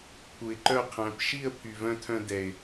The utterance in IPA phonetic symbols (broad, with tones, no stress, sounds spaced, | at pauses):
pʰ u˨ ɪ̯ ǃ œ˦˨ qʰ æ̃˨˦ p ʃ i˦˨ ə̯ pʰ y˨ v œ̃˧ tʰ œ̃˧ d ɛ˨ ɪ̯